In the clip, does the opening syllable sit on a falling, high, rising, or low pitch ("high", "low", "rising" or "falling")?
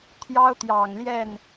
high